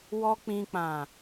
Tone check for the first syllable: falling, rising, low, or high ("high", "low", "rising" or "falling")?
high